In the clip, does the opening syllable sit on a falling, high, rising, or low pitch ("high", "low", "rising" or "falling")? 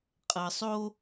low